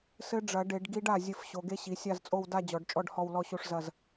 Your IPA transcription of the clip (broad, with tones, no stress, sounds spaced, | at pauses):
s ɘ˦˥ ɖ͡ʐ ɐ˨˩˦ ɖ e˨˩˦ ɖ ɡ i˦˥ ɖ a˥˩ zʲ ɘ˥˩ f ɕ o˨˦ ɡ e˦˥ ɕ i˨˦ sʲ a˥˧ z t͡sʼ o˥˧ w d a˥˧ d͡ʑ ɔ˨˩˦ ɖ t͡ʃʼ ɔ˥˧ ɖ h ɔ˥˧ w l ɔ˥˧ ɕ o˥˧ ʂ z ɐ˥˧ z